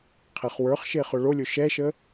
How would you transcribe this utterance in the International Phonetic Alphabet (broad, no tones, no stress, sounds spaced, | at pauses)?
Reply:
qʰ ɛ χ w ə˞ χ ʃ e χ ʊ ɭ o lʲ ʊ ʃ ɛ ʃ ə